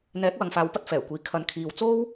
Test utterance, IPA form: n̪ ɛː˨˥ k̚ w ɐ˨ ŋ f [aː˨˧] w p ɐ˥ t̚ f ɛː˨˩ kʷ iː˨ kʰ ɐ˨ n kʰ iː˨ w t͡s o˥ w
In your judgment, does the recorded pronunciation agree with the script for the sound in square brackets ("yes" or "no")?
no